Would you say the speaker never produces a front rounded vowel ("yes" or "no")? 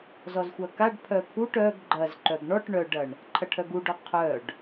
no